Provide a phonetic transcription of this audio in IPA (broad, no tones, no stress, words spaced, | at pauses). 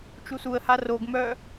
t͡ʃusuə̯ha roɡmœː